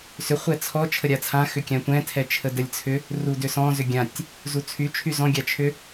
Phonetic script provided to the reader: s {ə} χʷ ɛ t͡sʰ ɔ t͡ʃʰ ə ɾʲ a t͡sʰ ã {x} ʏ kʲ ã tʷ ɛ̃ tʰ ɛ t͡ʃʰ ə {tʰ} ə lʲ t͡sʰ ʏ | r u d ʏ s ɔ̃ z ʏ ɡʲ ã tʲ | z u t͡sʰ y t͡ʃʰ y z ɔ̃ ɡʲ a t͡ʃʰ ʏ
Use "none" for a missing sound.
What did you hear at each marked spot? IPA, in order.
ʏ, x, d

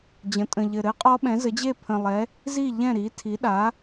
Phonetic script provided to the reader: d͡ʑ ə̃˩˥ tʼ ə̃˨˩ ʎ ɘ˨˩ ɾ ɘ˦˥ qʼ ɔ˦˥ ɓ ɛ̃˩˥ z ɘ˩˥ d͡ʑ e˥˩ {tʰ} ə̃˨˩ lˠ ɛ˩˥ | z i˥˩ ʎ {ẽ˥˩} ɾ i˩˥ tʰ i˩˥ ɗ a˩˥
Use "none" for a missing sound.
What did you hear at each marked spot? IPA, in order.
pʰ, ɛ̃˥˩

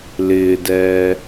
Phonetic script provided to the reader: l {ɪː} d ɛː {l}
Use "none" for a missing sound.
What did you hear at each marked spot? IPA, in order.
ɪː, none

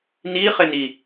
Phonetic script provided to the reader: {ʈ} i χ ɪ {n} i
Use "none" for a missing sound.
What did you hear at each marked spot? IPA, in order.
n, n

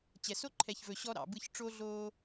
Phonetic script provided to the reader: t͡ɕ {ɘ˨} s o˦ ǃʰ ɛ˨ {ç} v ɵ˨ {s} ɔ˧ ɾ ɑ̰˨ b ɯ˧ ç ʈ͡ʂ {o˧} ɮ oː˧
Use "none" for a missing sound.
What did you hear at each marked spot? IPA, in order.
ɛ˨, ç, ɕ, o˧

